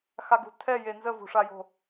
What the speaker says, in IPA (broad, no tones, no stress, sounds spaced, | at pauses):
x a ɡ ṳ tʰ ɛ j e n z ə v ṳ ʂ a j o̤